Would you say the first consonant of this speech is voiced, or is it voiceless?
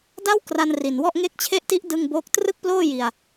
voiced